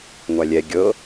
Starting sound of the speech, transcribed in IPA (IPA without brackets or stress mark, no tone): ŋʷ